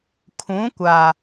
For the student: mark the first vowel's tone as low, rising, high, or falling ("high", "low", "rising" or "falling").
rising